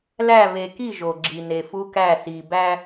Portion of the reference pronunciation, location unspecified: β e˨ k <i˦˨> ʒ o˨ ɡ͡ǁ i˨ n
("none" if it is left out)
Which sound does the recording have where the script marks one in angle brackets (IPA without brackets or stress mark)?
i˦˨